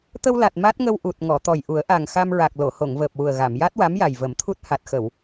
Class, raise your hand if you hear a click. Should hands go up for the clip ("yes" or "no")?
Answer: no